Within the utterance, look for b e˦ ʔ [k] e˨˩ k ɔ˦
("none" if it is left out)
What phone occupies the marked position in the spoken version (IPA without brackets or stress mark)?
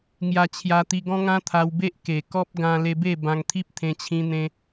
k